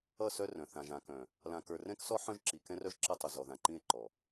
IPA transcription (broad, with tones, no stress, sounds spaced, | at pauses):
ʌ˦˨ s œ˦ r œ̃˨ θ ã˨ ʒ ã˨ k œ̃˨ | l ã˨ k ə˞˨ r ɛ̃˦ k s ɔ˦ ħ œ̃˦ ʒ ǁ i˨ k ɛ̃˦ r œ˦ ʒ ǁ ʌ˦ tˤ ə˨ z ɔ˨ ð ã˨ ǃ ĩ˦˨ e̯ ǃ ɔ˨